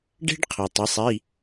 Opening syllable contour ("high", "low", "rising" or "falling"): high